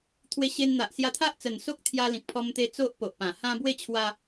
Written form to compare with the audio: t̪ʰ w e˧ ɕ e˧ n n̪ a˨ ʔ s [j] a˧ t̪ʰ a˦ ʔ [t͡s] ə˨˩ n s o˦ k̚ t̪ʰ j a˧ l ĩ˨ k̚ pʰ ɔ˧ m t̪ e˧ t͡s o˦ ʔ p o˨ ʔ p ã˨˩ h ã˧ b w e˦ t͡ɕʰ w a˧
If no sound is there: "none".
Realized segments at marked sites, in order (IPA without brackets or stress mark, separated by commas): j, t͡s